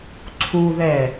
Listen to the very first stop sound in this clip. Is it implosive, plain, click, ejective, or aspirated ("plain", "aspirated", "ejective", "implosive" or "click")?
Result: click